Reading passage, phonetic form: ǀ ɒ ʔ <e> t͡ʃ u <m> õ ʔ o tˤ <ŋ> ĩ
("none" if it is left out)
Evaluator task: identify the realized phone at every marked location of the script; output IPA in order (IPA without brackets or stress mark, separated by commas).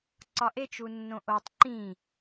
e, nː, ǃ